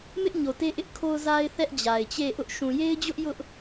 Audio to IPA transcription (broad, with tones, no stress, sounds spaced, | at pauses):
m ɪ˦ ʔ ɲ o˨ t e˦ ʔ ɪ˦ ʔ kʰ o˦ ʊ̯ z a˦ ɪ̯ θ ɛ˦ ʔ d͡ʑ a˨ ɪ̯ t͡ɕ e˦˨ ʔ ʊ˦ ʔ ʃ ũ˨ j e˦ ɪ̯ d͡ʑ ʊ˦ ʔ j ʊ˦ ʔ